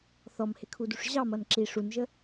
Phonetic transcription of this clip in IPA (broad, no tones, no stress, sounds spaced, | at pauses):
θ ɔ m h ɪ kʰ u d u ʂ ʑ ɑ m ʌ n ǁ i ʂ u n ʒ ə